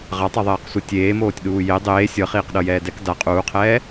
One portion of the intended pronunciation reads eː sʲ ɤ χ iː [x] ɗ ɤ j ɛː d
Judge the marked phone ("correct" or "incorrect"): incorrect